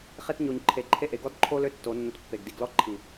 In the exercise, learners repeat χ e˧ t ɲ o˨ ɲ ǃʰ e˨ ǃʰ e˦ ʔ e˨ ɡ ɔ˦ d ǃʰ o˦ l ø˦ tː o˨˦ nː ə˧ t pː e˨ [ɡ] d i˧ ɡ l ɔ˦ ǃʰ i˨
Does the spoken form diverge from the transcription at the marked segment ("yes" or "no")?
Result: no